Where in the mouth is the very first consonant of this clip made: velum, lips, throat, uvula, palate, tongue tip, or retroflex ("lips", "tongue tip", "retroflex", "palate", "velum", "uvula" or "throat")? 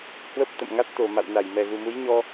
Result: throat